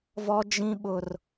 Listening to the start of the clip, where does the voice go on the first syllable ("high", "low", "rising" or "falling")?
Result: high